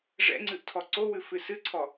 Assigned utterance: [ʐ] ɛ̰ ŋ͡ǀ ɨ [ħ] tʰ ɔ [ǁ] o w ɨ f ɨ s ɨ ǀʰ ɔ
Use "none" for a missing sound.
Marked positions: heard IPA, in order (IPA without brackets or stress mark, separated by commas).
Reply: ʐ, ʔ, ǀ